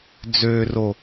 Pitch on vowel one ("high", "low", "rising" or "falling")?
low